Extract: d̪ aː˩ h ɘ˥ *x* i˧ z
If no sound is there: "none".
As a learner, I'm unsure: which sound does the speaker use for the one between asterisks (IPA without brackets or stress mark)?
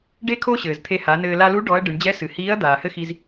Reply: x